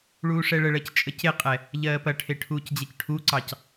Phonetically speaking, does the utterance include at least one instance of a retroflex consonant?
yes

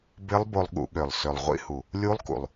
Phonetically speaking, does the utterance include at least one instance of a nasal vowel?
no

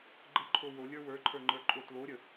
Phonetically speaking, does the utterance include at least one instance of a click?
yes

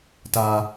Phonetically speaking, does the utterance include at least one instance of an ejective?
no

